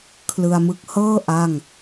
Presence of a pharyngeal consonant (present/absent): absent